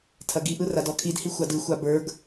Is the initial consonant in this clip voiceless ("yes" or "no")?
yes